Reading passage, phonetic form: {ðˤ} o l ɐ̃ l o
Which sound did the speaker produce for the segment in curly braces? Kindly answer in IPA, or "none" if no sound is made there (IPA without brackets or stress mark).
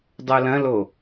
dˤ